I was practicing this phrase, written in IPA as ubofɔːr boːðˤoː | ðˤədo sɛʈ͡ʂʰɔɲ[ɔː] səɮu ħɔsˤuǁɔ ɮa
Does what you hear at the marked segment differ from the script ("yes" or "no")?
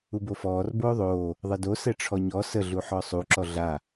yes